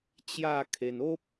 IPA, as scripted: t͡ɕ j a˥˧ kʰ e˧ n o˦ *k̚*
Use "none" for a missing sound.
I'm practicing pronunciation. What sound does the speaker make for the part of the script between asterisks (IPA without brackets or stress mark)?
p̚